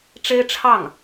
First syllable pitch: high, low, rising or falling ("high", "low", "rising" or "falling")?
high